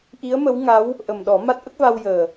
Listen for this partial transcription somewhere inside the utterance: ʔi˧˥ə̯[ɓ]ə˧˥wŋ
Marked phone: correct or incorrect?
incorrect